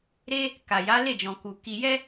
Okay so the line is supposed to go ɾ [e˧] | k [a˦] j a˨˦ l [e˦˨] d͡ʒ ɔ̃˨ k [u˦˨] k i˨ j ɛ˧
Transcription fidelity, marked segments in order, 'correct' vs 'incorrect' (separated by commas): correct, incorrect, correct, incorrect